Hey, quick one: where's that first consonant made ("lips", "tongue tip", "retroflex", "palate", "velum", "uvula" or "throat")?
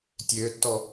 tongue tip